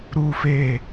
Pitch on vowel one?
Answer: low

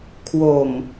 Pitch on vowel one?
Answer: low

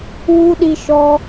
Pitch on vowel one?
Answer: high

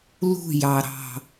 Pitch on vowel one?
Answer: falling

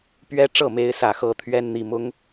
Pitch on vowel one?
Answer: high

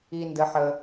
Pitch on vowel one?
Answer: high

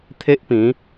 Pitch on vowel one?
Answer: high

